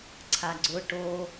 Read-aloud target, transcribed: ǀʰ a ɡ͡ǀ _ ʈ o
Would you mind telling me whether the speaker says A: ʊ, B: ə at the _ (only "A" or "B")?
A